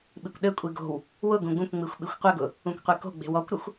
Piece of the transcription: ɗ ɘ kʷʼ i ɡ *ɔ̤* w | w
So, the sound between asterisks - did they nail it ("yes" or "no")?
no